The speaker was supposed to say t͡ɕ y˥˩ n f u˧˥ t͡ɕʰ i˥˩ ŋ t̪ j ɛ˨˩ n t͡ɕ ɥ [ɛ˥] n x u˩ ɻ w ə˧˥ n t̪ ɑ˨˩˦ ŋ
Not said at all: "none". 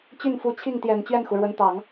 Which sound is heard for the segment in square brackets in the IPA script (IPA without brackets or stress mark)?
ɛ˥˩